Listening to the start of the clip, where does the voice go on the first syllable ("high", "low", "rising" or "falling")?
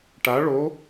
rising